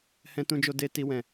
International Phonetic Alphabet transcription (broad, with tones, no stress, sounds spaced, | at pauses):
h ɛ̃˧ t ũ˧ d͡ʒ o˧ d e˧ t i˦ w ɛ̃˦˨